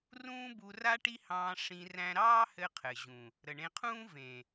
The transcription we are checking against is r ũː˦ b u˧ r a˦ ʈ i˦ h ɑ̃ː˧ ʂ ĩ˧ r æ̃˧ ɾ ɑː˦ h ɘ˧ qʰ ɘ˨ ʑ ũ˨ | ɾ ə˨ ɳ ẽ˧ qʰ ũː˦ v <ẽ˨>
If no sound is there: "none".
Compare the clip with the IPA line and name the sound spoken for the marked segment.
ẽ˨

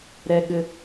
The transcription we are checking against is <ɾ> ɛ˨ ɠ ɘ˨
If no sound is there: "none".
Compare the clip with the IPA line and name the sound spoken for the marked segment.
ɾ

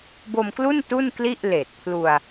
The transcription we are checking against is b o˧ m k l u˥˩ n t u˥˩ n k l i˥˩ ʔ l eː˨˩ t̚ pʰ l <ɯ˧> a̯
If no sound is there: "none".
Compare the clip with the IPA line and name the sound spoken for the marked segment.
u˧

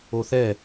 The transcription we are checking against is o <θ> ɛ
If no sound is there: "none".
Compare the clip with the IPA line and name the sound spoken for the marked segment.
θ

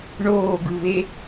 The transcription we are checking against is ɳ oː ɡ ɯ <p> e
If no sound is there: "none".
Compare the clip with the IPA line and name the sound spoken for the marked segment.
β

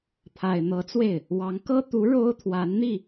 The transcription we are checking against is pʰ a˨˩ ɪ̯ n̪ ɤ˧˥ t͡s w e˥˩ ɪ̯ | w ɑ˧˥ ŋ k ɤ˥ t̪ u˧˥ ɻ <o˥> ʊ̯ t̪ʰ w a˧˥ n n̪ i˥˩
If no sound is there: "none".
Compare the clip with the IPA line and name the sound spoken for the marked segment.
o˥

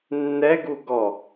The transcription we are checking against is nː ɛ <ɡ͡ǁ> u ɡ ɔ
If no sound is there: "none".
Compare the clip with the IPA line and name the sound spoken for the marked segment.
ɡ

